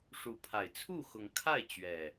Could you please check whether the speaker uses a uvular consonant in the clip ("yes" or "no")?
no